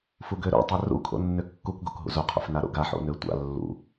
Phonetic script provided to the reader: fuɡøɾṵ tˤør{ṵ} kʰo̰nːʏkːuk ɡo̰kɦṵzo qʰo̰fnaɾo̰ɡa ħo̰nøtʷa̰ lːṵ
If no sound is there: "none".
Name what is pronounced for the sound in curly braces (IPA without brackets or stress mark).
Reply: ṵ